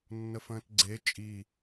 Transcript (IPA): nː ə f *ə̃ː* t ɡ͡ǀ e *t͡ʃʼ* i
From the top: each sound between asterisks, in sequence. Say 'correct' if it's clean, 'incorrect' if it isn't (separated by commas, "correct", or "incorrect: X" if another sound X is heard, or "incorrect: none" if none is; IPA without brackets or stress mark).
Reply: correct, correct